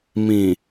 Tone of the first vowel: low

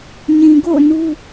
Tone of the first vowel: low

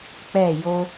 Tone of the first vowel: falling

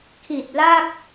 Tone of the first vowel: low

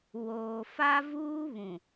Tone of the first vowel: low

